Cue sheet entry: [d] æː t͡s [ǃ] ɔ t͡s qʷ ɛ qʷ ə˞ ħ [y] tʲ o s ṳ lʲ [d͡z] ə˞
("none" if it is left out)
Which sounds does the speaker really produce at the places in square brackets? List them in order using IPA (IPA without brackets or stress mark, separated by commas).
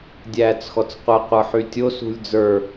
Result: dʲ, x, y, d͡z